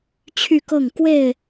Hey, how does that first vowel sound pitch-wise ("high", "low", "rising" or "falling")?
falling